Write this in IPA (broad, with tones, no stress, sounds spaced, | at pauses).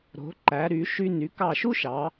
ɾ o̤˩˧ ǃ æ˩˧ ɾ y˩˧ ʃ y˧ n y˩˧ k ɑ˧˩ ʃ u˥ ʃ ɑ˩˧